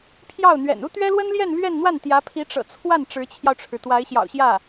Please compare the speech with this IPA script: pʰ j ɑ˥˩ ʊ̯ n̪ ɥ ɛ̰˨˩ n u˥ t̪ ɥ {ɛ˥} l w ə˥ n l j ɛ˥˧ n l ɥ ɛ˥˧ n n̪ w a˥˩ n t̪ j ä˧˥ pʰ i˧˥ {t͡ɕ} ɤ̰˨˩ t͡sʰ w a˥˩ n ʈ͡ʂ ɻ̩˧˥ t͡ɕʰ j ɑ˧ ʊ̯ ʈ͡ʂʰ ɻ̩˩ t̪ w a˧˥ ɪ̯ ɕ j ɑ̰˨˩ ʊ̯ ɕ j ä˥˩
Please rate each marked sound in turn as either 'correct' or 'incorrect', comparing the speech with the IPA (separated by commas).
correct, incorrect